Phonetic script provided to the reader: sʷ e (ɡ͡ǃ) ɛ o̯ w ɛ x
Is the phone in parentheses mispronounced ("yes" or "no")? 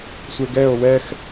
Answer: yes